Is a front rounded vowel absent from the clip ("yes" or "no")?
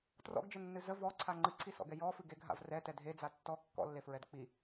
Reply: yes